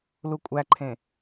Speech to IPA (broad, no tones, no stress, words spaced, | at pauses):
lukʷʼæǃʰẽ